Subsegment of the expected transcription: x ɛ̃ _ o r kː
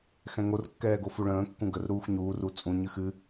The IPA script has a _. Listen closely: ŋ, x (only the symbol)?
ŋ